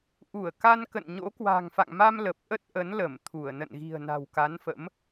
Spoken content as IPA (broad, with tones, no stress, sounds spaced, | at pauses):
ʔ u˧˩ ə̯ k a˧ n k ə̰˧˨ n ɲ o̰˧˥ k w a̤˨˩ ŋ f a̰˧˨ ŋ m a˧ m l ə˨˩ p̚ ʔ ə˦˥ t̚ ʔ ə˨˦ n l ə˧˩ m t̪ʰ u˧˩ ə̯ n ə̰˧˨ n ɣ i̤˨˩ ə̯ n a̤˨˩ w k a˨˦ n f ə̰˧˥ m